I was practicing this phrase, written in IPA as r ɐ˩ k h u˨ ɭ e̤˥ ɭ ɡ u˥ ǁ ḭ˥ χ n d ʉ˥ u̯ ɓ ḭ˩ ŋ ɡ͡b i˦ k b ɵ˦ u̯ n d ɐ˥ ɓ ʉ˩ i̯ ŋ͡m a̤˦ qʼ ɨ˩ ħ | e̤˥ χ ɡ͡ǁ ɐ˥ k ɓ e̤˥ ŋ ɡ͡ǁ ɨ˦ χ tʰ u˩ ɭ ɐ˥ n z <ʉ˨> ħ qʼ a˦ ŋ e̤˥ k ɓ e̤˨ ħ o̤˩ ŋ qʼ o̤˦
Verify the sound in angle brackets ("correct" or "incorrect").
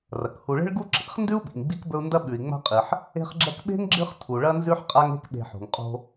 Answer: incorrect